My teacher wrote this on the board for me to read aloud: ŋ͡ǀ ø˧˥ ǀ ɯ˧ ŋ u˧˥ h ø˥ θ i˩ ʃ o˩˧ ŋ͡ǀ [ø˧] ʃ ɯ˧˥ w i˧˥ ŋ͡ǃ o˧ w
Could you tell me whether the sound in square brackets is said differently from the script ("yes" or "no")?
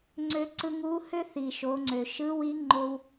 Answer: yes